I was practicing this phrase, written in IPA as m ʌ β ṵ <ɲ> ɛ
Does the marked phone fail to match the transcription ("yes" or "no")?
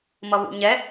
no